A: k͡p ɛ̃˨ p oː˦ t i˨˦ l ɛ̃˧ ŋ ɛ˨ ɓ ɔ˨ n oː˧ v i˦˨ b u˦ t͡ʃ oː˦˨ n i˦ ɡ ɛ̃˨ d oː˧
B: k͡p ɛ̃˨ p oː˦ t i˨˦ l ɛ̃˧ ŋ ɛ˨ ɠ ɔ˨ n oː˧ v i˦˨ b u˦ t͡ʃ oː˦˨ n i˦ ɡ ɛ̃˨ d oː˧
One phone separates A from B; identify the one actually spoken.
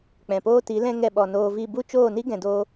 A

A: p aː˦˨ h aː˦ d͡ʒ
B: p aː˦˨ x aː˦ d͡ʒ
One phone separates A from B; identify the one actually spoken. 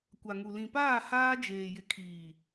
A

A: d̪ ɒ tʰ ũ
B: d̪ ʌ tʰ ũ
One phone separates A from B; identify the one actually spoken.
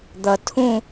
B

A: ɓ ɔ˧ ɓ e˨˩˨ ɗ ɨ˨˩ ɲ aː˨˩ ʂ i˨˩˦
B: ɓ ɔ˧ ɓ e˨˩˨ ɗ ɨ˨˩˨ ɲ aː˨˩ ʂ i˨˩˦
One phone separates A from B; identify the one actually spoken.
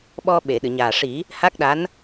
B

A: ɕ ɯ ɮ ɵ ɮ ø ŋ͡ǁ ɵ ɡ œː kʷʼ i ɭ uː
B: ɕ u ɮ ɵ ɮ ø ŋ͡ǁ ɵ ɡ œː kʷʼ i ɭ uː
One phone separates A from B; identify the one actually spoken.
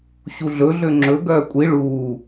B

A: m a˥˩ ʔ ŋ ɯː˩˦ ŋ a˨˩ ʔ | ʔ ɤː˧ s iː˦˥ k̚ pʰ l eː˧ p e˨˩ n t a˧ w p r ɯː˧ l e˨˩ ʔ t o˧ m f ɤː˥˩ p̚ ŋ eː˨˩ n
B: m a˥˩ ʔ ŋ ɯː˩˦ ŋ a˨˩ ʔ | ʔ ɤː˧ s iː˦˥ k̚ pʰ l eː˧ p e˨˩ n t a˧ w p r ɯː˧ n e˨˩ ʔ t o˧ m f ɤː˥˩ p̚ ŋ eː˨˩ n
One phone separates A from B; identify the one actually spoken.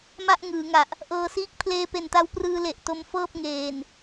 A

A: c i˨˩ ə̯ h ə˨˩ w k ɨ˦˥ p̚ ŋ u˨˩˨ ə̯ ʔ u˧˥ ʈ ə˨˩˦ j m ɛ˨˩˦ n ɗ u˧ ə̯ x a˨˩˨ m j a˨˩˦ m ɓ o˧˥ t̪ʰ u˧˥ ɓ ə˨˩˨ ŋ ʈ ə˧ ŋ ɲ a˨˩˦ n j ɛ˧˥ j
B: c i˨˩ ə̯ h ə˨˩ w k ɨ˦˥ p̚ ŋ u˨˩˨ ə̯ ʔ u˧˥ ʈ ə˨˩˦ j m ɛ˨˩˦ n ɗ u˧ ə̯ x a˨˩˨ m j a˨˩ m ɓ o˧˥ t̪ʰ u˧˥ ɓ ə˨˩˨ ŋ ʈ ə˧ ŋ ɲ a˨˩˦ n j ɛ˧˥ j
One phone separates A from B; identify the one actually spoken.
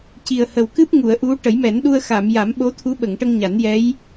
A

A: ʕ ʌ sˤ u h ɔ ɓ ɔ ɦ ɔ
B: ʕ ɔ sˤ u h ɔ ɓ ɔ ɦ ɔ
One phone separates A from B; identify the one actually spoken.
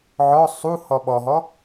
B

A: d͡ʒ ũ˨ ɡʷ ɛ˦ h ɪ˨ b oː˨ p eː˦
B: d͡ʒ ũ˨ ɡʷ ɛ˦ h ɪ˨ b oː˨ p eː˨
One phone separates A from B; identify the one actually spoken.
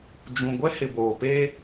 A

